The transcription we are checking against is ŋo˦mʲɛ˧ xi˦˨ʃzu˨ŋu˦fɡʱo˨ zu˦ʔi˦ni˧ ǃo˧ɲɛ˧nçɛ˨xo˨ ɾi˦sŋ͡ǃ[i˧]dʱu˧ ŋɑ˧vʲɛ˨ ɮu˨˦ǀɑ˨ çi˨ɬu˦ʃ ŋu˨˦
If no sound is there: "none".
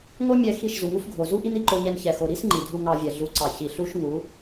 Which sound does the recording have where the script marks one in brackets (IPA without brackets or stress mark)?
i˨